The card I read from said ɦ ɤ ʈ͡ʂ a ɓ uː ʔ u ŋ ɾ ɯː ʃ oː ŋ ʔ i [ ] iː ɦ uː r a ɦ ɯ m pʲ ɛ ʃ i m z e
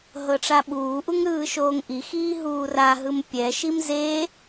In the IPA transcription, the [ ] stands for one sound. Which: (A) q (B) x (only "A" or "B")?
B